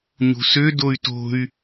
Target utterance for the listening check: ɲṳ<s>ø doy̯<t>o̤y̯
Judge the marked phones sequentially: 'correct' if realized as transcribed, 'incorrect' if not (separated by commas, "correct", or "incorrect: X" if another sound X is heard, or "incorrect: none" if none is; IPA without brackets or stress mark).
correct, correct